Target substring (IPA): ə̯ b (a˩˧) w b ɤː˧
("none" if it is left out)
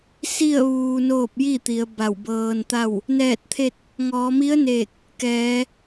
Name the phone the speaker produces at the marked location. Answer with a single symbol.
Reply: a˧˩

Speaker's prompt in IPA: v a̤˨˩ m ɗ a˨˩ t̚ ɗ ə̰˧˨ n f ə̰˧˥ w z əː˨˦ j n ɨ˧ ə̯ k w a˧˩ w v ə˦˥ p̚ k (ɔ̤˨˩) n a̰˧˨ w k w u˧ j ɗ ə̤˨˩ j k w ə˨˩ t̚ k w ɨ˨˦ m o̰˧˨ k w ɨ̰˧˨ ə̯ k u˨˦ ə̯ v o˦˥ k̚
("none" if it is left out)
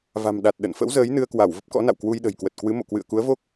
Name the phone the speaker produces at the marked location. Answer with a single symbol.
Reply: ɔ̰˧˥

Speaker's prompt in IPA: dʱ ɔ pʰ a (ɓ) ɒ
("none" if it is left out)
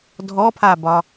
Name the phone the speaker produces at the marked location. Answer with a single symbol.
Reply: b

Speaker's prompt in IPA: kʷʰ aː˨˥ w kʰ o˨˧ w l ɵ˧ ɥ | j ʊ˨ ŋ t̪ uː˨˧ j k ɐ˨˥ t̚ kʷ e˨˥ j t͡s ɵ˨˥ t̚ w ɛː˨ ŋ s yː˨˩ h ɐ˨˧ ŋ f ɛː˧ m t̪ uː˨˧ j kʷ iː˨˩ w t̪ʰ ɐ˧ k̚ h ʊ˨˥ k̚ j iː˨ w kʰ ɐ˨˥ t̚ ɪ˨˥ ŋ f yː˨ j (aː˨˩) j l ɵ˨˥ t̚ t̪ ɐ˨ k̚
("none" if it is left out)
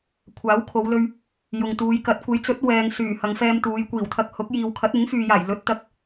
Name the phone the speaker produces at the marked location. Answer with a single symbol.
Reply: aː˨˩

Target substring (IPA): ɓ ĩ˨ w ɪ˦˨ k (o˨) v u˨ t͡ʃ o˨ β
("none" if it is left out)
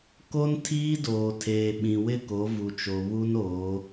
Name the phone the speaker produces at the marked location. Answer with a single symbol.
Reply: o˨˦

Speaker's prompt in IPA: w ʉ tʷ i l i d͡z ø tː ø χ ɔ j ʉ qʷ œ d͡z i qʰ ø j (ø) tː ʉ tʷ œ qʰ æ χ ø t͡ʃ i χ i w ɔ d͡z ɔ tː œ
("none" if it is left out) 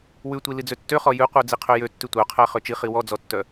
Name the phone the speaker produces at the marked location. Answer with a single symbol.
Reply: ø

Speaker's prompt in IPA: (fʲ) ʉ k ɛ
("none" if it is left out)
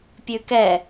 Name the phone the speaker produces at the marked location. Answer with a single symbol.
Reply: pʲ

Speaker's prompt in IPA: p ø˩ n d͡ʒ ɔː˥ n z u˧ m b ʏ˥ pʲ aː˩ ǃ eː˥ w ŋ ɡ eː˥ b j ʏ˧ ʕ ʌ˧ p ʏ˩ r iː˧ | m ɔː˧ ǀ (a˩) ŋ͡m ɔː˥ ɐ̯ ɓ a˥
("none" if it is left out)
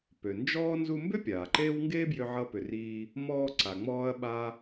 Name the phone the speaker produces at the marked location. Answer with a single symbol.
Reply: a˩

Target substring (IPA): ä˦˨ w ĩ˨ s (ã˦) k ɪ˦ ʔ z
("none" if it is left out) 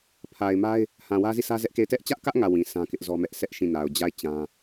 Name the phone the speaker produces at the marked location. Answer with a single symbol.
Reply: ã˦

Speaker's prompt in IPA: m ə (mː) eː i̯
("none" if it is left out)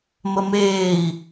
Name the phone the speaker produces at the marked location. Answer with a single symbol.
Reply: m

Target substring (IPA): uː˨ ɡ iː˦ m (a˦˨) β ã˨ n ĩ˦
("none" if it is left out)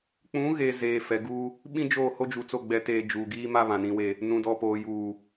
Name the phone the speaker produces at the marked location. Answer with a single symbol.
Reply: a˦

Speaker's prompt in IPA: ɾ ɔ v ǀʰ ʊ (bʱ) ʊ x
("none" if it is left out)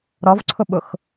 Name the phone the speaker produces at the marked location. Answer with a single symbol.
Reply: ɓ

